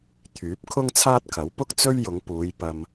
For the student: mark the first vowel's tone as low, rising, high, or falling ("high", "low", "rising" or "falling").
rising